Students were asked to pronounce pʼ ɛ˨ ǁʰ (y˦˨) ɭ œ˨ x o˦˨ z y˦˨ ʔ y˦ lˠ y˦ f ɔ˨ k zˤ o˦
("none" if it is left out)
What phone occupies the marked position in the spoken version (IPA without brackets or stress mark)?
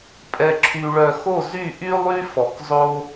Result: y˨